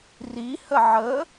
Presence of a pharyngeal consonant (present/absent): present